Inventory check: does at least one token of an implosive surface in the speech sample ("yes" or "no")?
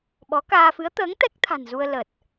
yes